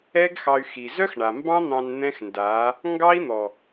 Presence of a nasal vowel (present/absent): present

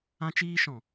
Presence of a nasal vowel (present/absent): present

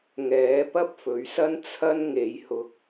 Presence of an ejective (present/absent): absent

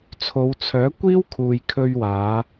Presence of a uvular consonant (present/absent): absent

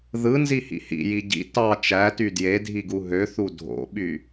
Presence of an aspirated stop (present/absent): absent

